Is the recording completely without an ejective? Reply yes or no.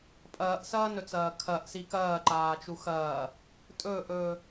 no